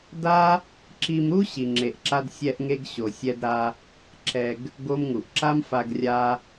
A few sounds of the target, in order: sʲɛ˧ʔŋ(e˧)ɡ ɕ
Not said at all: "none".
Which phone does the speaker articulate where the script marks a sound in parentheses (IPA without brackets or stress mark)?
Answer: e˧